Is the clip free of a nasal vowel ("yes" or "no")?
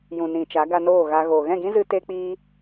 no